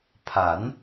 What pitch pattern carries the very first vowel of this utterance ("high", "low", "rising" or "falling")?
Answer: rising